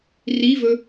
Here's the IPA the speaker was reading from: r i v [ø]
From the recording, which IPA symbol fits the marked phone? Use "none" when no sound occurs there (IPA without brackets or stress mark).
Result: ɵ